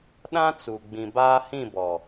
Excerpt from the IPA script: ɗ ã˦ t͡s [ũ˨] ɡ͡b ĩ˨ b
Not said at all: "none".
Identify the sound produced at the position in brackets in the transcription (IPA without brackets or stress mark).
u˨